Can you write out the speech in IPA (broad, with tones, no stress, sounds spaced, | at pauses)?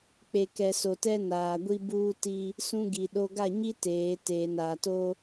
k͡p e˨ k ɛ˨ s o˨ t ɛ˦ n aː˨ ɡʷ i˦ b uː˦ t i˦ | s ũ˦ ɡ i˨ ɗ o˦ ɡ a˦˨ ɲ i˦ t eː˨˦ t eː˨ n aː˨ t o˦